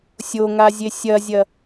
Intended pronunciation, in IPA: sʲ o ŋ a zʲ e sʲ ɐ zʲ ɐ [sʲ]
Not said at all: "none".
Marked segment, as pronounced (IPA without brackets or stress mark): none